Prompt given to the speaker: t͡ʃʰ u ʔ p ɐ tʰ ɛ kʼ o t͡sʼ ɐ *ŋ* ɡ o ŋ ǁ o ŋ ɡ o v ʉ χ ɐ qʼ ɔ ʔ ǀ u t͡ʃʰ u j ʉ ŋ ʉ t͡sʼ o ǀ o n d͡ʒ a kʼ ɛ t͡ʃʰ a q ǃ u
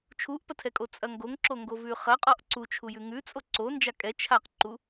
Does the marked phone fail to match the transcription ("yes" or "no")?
no